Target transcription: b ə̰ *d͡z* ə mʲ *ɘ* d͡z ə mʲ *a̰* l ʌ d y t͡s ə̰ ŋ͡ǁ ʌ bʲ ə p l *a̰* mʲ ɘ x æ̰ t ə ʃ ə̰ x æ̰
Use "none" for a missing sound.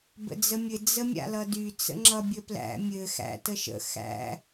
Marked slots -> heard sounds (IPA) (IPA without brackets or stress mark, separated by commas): d͡z, ɘ, a̰, æ̰